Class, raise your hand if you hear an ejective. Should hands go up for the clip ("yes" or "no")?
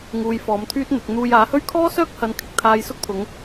no